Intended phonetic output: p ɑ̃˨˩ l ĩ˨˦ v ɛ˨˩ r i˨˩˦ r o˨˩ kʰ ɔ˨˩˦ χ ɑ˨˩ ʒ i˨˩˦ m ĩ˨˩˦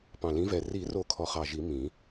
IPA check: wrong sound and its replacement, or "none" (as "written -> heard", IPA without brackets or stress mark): none